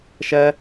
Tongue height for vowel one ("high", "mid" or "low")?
mid